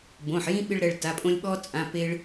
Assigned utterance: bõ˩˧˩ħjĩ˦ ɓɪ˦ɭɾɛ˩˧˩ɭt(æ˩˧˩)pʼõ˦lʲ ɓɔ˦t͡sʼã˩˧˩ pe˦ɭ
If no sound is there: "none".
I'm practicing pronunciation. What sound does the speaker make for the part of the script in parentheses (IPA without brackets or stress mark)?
a˩˧˩